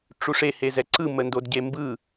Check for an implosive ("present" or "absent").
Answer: absent